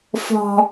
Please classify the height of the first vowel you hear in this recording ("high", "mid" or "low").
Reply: mid